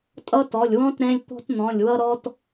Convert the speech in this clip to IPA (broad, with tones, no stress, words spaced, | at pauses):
tʼʌ˦tɔ˩˧˩lʲwɔ̃˦t ɾɛ̃˦lʲ t̪ɔ̤˦tn̪ɔ̃˩˧˩lʲwʌ˦ɾɔ˦t